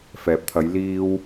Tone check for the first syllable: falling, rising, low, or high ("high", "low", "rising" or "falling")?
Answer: low